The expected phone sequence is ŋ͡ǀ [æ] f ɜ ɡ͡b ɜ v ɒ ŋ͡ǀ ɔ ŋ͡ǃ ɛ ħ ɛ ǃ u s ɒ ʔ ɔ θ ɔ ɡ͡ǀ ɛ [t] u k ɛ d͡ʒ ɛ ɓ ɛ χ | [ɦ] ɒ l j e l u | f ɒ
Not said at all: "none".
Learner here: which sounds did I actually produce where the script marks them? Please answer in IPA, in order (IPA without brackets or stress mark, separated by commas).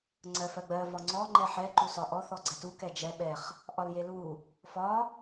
ɜ, t, ʔ